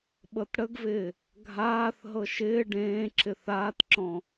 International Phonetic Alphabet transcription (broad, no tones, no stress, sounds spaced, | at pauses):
ɓ ɤ t ɽ ə ɡ v ɪː | ɡʱ aː θ ɦ ɤ ʃ ɪː ɖ ẽː ǁ ɪ θ aː t ǁ ɔ̃